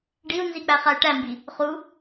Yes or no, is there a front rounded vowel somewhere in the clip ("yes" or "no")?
yes